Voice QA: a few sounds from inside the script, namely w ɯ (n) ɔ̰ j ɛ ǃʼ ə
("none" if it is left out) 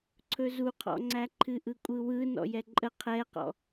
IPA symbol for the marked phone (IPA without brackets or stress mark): n